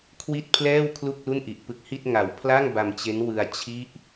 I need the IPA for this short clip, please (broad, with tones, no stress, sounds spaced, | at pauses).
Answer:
kʰ w i˥˩ t̚ pʰ l ɛː˥˩ w kʰ l u˥˩ k̚ l u˥˩ n ʔ i˨˩ ʔ p ɯ˦˥ k̚ h i˥˩ t̚ ŋ a˩˦ w pʰ l a˥˩ ŋ b a˧ m t͡ɕ e˦˥ n w ɯ˧ a̯ t͡ɕʰ i˥˩ ʔ